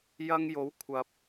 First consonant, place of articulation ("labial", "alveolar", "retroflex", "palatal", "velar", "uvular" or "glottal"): palatal